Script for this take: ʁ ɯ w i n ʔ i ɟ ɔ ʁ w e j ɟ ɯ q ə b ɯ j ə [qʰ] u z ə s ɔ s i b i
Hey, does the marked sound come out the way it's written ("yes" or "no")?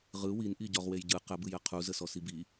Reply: yes